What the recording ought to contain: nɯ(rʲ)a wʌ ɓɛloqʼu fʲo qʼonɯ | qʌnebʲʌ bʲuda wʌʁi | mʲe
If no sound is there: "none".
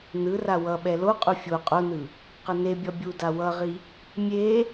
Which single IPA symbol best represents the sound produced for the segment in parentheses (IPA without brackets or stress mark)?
r